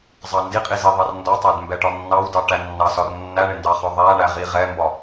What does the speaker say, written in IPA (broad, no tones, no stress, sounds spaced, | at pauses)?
zˤ ɑ n d i qʼ i z i ðˤ ɑ r n d ɒ tˤ æ d m b ɛ ʈ ɒ nː ɑ w d ɑ ʈ æ nː ɑ s ɒ r nː æ ɳ ɪ n d ɑ χ ɒ ðˤ æ ɳ æ ʁ i ʁ ɛ m b ɒ